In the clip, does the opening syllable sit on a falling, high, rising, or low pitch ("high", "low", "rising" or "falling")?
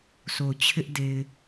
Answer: low